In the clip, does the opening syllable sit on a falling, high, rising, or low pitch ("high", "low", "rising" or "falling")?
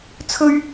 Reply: high